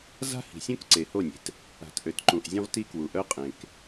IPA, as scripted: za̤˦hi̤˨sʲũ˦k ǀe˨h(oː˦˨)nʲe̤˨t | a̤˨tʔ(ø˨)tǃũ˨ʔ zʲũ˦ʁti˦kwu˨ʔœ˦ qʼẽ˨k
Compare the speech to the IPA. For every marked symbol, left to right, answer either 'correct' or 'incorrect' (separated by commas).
incorrect, correct